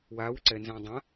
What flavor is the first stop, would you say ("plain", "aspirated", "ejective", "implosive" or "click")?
click